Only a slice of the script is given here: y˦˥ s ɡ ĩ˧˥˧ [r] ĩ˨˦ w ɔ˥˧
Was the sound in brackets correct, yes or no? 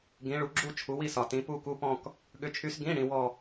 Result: no